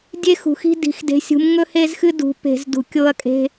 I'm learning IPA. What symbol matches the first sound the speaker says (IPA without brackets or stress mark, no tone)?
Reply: dʲ